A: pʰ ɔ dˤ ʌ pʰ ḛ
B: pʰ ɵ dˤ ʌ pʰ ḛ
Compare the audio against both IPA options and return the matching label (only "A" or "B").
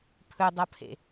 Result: B